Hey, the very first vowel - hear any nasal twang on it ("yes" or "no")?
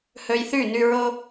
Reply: no